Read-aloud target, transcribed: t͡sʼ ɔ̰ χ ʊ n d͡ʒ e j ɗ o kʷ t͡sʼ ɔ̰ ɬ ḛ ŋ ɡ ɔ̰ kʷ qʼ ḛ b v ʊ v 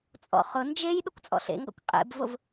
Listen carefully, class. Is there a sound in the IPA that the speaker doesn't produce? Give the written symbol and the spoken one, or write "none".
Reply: none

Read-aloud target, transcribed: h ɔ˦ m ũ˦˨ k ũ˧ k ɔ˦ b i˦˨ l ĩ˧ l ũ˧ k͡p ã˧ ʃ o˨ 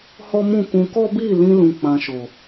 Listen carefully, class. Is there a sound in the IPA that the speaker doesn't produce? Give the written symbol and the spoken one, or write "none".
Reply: none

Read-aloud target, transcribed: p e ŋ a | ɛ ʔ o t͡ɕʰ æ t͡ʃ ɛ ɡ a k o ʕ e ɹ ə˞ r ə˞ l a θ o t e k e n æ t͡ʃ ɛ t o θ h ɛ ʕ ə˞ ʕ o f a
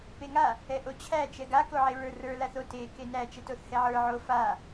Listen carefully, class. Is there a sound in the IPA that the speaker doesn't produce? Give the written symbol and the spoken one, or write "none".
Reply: none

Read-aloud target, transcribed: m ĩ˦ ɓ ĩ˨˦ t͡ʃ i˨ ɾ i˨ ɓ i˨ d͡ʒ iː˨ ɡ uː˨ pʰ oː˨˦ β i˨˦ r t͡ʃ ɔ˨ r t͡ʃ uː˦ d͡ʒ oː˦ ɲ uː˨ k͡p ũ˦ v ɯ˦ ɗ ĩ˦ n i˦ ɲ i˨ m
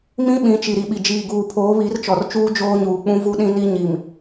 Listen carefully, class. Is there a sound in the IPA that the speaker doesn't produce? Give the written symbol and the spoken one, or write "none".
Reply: ɯ˦ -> u˦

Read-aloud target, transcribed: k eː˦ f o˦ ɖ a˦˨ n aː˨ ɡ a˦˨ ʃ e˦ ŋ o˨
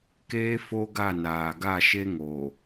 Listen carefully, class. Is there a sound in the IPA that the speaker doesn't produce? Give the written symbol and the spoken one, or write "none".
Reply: ɖ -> ɡ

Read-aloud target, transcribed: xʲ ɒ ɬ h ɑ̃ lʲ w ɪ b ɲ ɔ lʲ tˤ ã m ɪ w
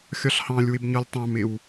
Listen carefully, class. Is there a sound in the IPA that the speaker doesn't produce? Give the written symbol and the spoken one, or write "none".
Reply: ã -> ɑ̃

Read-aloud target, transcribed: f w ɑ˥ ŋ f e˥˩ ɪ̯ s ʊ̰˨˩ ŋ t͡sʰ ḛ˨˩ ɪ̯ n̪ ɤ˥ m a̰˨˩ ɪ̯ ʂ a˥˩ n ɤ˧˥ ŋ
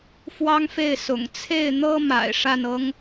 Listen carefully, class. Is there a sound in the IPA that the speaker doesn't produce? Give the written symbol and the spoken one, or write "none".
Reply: ḛ˨˩ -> e˥˩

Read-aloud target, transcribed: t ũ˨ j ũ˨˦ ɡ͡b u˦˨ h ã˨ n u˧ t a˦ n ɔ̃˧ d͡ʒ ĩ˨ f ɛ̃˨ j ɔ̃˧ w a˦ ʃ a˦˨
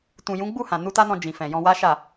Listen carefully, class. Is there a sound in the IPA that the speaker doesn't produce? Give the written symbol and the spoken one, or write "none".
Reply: none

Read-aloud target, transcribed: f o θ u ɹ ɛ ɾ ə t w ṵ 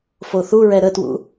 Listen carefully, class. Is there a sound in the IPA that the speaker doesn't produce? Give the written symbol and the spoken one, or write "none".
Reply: none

